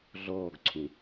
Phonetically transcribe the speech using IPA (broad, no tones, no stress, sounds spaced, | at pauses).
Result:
ɮ ɔː ɡ ǀʰ ũ